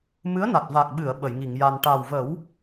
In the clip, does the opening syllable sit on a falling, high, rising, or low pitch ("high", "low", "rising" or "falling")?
rising